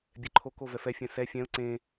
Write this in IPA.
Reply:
bʲ ɛ ǃʰ o k o v ɛ f ɛ fʲ ɛ̃ s ɛ fʲ ɛ̃ ʊ̯ ǀ ẽ

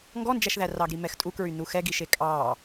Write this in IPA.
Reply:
ŋ ɡ ɔ n d͡ʒ æ ʃ ð æ r ɑ ɡ ɾ i m ɛ x tʼ u k ɹ y n u x ɛ ɡ i ʃ e kʼ ɑ

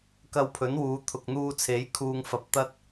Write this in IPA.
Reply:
k ɐ˧ w pʰ ɵ˨˥ n w uː˨˧ t̪ʰ ʊ˨ k̚ n̪ uː˧ t͡sʰ e˨˥ j kʰ uː˧ ŋ f ɐ˧ p̚ t̪ ɐ˥ t̚

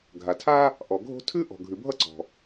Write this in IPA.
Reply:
ɡʱ a˩ tʰ a˥ | ʔ ɔ˩ ɡʱ o̤˥ tʰ ʉ˥ ʔ ɔ̤˩ ɡʱ ʉ˩ bʱ ʌ˥ ǀ ɔ̤˩

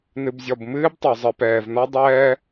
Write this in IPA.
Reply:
n ɨ˨ b zʲ ɔ˨ b m ɨː˦ b tˤ o˨ zˤ ɨ˨ p ɛː˨ v n ɔ˦ dˤ ɛː˦

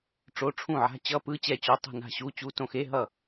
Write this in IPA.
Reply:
ʈ͡ʂ o˧˥˧ ʈ͡ʂʰ ũ˥˩ ʕ a̤˧˥˧ t͡ɕ ʌ˧˥˧ p ɯ˧˥˧ t͡ɕ ɛ˥˩ t͡ɕ o˧˥˧ tˤ ṳ˥˩ n a̤˥˩ ɕ u˧˥˧ t͡ɕ u˧˥˧ t õ˥˩ x e˧˥˧ ɦ ʌ˥˩

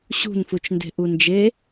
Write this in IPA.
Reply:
ɕ ṳ n f u t͡ʃ n d e̤ ʔ u n d͡ʒ e

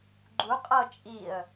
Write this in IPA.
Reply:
ɡ͡ǃ u qʼ ɤ t͡ʃʼ i ə̯

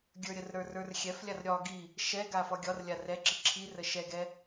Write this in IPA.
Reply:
ɡʲ ə˞ ɾʲ ə r ɾ ə˞ r ə˞ r xʲ ɛ f lʲ a r ɾʲ ɒ ɡ i | ʃ ɛ ɡ a f ɒ ɡʲ ɒ r lʲ a r ɛ ǁ i ǁʰ i r ə ʃ ɛ ɡ ɛ

